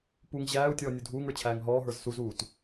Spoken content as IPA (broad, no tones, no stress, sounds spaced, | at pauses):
p u ŋ ʑ æː u̯ tʲ ɔː nʲ u dʱ uː ŋ ə˞ t͡ɕʰ æː ŋ ɦ ɔː ɦ ə˞ z s u z uː t